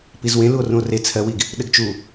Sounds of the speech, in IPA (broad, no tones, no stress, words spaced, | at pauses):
pizwẽ luo̯rũo̯re t͡sʰɜwiɡ | ɗɘɡt͡ʃu